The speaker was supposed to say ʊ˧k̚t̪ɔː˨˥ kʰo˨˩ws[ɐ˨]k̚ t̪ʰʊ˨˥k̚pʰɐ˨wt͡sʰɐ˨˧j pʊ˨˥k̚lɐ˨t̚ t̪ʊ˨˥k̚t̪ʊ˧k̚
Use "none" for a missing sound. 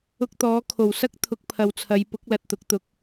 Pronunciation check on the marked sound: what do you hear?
ɐ˥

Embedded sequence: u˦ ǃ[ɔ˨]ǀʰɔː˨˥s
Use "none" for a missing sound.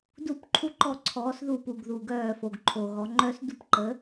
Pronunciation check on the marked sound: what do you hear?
ɔ˥˩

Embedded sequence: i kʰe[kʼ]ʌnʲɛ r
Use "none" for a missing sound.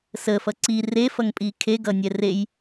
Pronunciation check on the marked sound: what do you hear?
ɡ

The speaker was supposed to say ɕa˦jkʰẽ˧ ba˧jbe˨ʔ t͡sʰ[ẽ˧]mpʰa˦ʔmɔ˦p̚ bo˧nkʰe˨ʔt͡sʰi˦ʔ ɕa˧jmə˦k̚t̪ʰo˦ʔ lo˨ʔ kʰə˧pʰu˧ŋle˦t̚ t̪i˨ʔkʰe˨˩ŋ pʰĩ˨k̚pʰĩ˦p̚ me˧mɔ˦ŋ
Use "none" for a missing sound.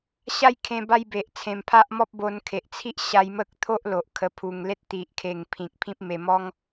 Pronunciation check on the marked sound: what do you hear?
ẽ˧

